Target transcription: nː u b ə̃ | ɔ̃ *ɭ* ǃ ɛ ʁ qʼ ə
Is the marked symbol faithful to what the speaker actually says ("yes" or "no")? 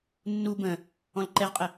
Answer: no